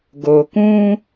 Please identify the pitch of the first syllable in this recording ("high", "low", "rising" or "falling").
low